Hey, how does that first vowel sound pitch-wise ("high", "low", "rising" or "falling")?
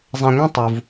low